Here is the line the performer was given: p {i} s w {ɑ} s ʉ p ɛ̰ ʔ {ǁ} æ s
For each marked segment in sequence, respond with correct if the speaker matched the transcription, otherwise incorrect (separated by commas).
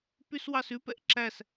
incorrect, correct, correct